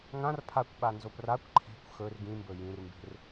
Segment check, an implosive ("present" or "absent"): present